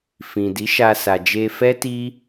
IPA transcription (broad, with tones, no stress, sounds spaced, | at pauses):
f ĩ˨ d i˨˦ ʃ a˧ s a˨ d͡ʒ e˧ f ɛ˦ t i˦